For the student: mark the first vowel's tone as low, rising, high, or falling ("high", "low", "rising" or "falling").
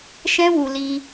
high